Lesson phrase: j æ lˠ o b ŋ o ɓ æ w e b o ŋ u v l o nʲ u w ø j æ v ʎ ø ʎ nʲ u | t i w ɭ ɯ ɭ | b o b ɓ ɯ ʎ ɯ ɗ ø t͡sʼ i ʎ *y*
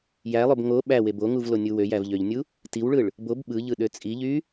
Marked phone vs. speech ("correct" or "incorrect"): correct